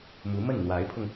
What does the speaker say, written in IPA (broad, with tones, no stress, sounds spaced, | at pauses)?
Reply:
m u˧˥ m ə˥˩ n n̪ w a˧˥ ɪ̯ pʰ ʊ˧ ŋ